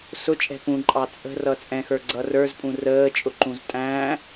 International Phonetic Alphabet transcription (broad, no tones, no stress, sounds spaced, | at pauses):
s ʊ t͡ʃʼ ɛ̤ p ũ ǃʼ ɑ t͡sʼ ə̤ r ʌ t͡sʼ ɛ̃ x ə˞ ɡ͡ǀ ʌ r ə˞ z pʼ ũ r əː t͡ʃʼ ʊ ǃ ũ z tʼ æ̃